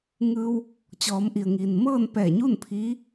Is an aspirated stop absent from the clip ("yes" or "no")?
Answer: no